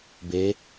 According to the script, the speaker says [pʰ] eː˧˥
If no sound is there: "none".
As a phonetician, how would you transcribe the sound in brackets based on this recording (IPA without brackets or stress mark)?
b